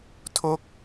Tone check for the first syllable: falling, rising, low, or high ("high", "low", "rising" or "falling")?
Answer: falling